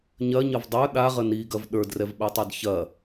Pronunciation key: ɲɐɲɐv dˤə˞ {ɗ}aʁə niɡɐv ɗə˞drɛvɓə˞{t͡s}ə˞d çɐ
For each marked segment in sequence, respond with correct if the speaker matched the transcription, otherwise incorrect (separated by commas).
correct, incorrect